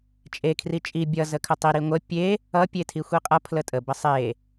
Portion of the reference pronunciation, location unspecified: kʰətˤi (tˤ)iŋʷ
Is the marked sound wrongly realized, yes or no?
yes